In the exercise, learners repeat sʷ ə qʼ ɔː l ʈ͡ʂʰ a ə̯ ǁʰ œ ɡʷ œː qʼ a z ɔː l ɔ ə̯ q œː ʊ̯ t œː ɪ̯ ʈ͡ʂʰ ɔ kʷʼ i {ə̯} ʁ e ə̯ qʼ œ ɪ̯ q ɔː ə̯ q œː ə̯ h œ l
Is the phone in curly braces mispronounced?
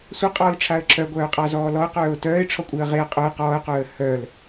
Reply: no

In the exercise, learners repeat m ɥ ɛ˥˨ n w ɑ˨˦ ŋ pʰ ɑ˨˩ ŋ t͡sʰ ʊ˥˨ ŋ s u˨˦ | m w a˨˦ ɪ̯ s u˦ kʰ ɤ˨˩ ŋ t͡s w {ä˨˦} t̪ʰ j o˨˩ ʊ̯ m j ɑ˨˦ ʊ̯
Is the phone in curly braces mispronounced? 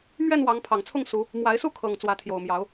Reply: no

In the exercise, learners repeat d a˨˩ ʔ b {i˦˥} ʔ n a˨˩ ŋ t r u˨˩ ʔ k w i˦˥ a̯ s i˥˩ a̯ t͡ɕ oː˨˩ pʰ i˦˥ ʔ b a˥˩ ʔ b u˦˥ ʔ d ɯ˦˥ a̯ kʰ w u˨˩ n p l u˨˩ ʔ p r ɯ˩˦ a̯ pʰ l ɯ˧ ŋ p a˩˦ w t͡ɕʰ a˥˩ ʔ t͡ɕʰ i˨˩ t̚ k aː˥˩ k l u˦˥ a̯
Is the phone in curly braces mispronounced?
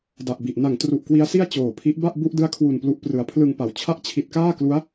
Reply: yes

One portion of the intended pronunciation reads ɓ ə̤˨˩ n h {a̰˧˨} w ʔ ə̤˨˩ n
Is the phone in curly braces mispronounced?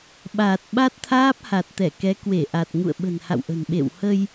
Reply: no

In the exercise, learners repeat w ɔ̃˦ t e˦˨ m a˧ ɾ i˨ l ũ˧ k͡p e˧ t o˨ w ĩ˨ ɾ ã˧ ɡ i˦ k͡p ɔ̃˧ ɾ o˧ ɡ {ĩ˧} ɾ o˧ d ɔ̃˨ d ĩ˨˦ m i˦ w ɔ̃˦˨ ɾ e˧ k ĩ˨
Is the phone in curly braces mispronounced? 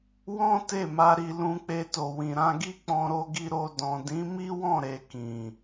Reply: yes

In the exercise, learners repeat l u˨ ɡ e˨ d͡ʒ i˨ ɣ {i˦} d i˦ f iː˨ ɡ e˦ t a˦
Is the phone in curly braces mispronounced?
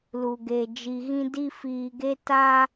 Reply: yes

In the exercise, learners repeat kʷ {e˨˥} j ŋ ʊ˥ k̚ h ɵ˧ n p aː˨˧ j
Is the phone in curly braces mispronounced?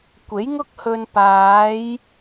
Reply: no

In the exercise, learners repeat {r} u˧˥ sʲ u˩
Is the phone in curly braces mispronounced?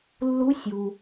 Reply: yes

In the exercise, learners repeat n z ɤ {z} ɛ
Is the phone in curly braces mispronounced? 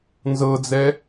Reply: yes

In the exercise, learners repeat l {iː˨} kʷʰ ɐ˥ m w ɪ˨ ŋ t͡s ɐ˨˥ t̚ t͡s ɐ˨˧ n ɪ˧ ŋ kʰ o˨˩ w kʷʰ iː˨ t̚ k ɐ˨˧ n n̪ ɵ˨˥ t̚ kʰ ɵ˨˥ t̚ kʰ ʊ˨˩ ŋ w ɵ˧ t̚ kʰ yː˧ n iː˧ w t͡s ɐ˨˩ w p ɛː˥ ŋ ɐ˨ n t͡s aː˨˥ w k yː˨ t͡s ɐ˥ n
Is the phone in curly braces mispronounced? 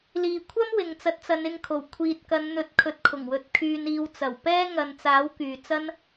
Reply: no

